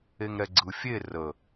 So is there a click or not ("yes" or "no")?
yes